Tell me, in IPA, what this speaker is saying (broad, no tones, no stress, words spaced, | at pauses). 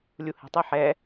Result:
lʲuhɛ̤tˤɯ ħɛ